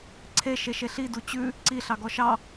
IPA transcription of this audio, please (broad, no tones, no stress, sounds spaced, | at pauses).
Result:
ǀʰ e ʃ e ʃ e ɬ i d u t͡ɕ ʉ | ǀ i ɬ ɑ ɡ ɔ ʃ ɑ